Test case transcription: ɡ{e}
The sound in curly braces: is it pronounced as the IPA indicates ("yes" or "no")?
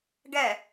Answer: no